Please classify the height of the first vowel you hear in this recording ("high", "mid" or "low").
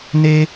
mid